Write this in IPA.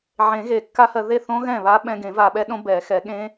ʕ ẽ˨˩˦ ɣ e˨˩˦ kː a˦˥ h ɜ˧ ð e˥˩ θ õ˦˥ ɣ ɛ̃˥˩ β a˦˥ ɓ ɛ̃˧ ɡ ẽ˨˩˦ v a˧ ɓ ɛ˦˥ ɗ õ˦˥ b ɛ˨˩˦ x ɛ˨˩˦ ɠ ẽ˦˥

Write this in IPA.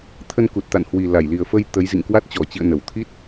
t̪ʰ ə˧ n k u˨˩ t̚ t̪ a̰˧˨ n h w i˨˩ l a˧˩ j l i˨˩ ə̯ f ə˧ j t̪ ə˨˦ j z ḭ˧˨ ŋ k w a˦˥ t̚ t͡ɕ ɔ˧˩ t͡ɕ ḭ˧˨ ə̯ n ə˧˩ w t̪ʰ i˦˥ t̚

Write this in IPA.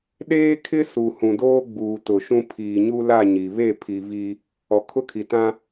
ɗ eː˦ kʰ ɪ˦ s u˨ h ũ˨ d oː˦ ɡ͡b uː˨ t ʊ˨ ʃ ũ˦ pʰ iː˨ ɲ u˦ l a˦˨ ɲ i˨ β e˦˨ pʰ i˨ v iː˦ | ɔ˨ kʰ ʊ˦ kʰ i˨ t ã˦

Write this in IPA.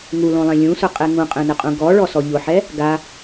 ŋ u l õ lˠ ẽ lʲ ũ s ʊ qʼ e ŋ ũ qʼ ẽ n ɪ qʼ ũ ɡ ɔ ɭ ɔ s ɔ ʎ ʊ ħ ɛ | ɡ a

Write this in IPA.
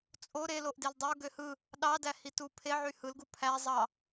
t͡sʼ o ɾ e l o ʔ d e l dˤ o ɡ ø h ɯ | ɗ ɑ d æ h i t u pʰ e ʕ y h ɯ l ɡ u pʰ æ zˤ ɑ

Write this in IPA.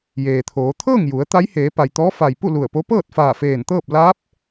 j eː˩ t̪ʰ oː˩˧ t̪ʰ ɤː˥˨ ŋ j u˩˧ ə̯ t̪ a˧˥ j h eː˩˧ p a˩ j t̪ ɔː˧˥ f a˩ j p u˥˨ l u˧˩ ə̯ p o˧˥ p ɤː˥˨ t̚ f aː˧˩ f eː˧˩ n t̪ ɤː˥˨ p̚ l aː˧˥ p̚

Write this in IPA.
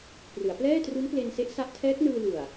p r ɯ˩˦ a̯ p l ɛː˥˩ t r u˦˥ n p l e˧ n s e˦˥ ʔ s a˦˥ ʔ tʰ ɛː˦˥ k̚ n ɯː˧ l u˨˩ a̯

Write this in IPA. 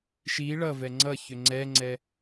ʃ i ɭ ʌ v ɛ ŋ͡ǀ ʌ ç ø ŋ͡ǀ ɛ ŋ͡ǀ ɛ

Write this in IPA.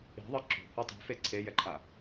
i̤ ðˤ ɯ ǁ ṳ h u tˤ ṳ f e ǀʰ e j ɛ ǃʰ a

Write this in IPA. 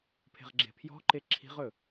pʰ e̤ ʁ ɡ͡ǁ e̤ pʰ j ɔ̤ ǃ e ǁʰ i̤ ʁ ɵ

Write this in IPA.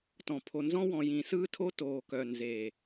t ɔ̃˨ pʰ o˨ n z ɔ̃˦ w ɔ̃˨ j ĩ˨ s ɯː˦ tʰ o˦ t oː˨ k œ˨ n z eː˨

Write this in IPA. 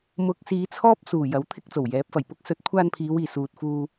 m ʊ˨˥ k̚ s iː˨˧ t͡sʰ ɔː˥ p̚ s uː˨˩ j ɐ˨˥ w t̪ʰ ɪ˥ k̚ t͡s o˨˩ w j ɛː˨˥ p̚ f ɐ˨˩ j p ʊ˥ k̚ s ɵ˨˥ t̚ kʷʰ aː˧ n pʰ iː˨˧ w iː˨˩ s uː˨ t̚ f uː˧

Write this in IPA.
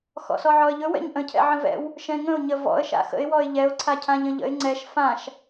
x ɔ̰ s ɔ ʕ ɔ ə̯ ʎ ɵ w ɛ̰ ɲ ʔ ə̃ cʰ ɛ̰ ʕ ə̃ v ɛ̰ w | ʃ ɛ̃ ŋ ə̃ ʊ̯ ɲ ə v ɔ̰ ə̯ ʃ a̰ x ə̰ ɪ̯ w ɔ ɪ̯ ʎ ɛ ʊ̯ ǀʰ a cʰ ã ʎ ə̃ ʎ ə̰ ɪ̯ ŋ͡ǀ ɛ ʃ f ã ʃ

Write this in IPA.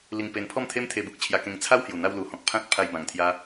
l i˧ ŋ p e˧ n pʰ ɔ˥˧ m t̪ʰ e˦ m t̪ʰ e˧ b u˨ k̚ t͡ɕʰ j a˧ k ẽ˧ ŋ t͡sʰ a˦ w h j u˨˩ n̪ a˧ w l u˨˩ h ɔ̃˨ k̚ pʰ ã˦ t̚ pʰ a˧ j b ã˨˩ ŋ t̪ʰ j a˧

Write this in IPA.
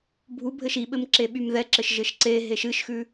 bʱ u bʱ ɘ ʃ i ɓ ɘ m ǁ e ɓ y m ð ɛ ǁ ɘ ʃ ʒ ɘ ʃ ǀ e ɦ e ʃ ɨ ʃ x ʉ

